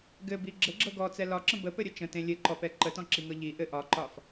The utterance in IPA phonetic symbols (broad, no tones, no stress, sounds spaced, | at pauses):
ɡ ɘ b i ɡ͡ǁ ə ɡ͡ǁ ɤ ɡ ɔ t͡s ɛ l ɒ ǁ ə̃ b ə p ɘ ɾʲ ə t͡ʃ ə̃ t ẽ lʲ ɘ ǃ ɔ p ɛ ǃ ə t ɔ̃ ǁ i ŋ ɤ ʎ i ʔ ɘ ʔ ɒ ǃ ɒ f